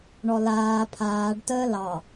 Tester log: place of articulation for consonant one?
retroflex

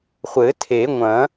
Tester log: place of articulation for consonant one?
uvular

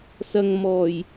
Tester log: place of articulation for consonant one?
alveolar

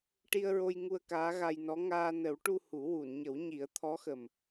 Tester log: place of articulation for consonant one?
retroflex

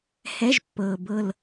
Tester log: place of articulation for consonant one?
glottal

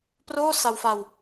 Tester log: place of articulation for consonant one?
labial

